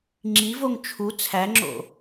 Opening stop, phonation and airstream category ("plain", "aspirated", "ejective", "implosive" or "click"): click